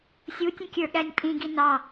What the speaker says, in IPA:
sʲutʲə̃ kʲə˞ɠænʲpʼĩɡi nɑ

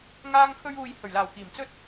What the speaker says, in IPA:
ŋaː˧ŋkʰɵ˧ɥuː˨j hɵ˨˩ɥlaː˨˩wkiː˨˩m t͡sɵ˥t̚

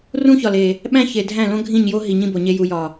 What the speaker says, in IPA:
rũ˦çɒ˨le˨ | ɓæ̃˦çe˨ dʱæ̃˦˨lõ˦ɡʱĩ˦˨ɲjo˦ ɦi˨ɲĩ˦bo˨ɲe˦ ju˨jɒ˨

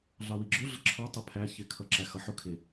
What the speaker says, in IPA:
ɮɑwiɡ͡ǁʊ ɮəǁʰɒ tˤəpʰæ çɪkʰʌ ǁæxʌħʊ kʰɪ

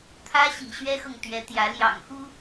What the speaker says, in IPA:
t̪ʰä˥ɕḭ˨˩ɕɥɛ˥xɤ˨ŋ t̪ɥɛ˧˥t̪jä˧˥ ljɑ̰˨˩ŋxu˥

